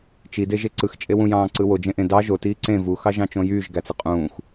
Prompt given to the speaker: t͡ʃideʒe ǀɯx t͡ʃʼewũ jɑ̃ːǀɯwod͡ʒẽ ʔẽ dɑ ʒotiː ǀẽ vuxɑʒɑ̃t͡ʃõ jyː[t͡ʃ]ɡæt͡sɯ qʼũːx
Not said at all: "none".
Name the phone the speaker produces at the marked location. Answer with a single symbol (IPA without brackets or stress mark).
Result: ʒ